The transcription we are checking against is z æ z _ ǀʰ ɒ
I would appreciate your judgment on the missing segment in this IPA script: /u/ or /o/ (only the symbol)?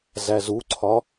u